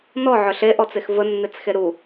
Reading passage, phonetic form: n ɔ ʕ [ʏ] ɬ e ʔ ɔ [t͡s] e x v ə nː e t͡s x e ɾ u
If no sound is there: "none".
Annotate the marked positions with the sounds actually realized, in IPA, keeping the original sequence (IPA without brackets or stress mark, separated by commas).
ʏ, t͡s